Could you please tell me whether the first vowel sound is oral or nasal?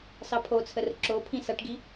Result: oral